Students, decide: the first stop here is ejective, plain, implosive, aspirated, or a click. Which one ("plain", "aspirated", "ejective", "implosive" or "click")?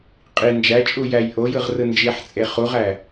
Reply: ejective